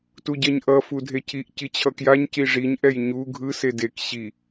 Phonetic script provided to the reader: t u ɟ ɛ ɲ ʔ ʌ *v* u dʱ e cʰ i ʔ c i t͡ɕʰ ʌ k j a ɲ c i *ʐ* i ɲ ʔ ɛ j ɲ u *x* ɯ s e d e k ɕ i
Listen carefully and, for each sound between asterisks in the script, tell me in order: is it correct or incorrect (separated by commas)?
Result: incorrect, correct, incorrect